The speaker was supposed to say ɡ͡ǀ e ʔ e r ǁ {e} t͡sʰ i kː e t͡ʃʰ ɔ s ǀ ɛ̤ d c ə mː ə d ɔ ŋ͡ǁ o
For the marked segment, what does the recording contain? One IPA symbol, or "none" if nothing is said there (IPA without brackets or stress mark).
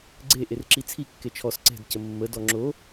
i